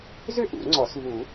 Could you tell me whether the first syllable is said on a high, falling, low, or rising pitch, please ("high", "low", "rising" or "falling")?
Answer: high